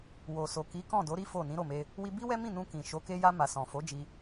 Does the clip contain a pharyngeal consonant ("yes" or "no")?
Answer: no